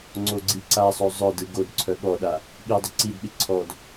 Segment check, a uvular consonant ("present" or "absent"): absent